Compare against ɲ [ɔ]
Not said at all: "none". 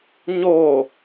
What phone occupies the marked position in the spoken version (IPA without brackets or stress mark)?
o